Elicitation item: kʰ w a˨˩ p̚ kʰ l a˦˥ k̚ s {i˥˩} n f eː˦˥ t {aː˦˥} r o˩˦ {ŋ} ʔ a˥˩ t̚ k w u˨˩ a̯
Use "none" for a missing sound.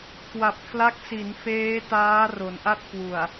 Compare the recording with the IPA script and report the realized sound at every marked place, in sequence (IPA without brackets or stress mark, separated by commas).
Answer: i˩˦, aː˦˥, n